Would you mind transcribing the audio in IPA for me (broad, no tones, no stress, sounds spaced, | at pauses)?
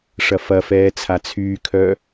ʂ ɐ f ɐ f ɛː t͡sʰ a t͡sʰ yː kʰ œ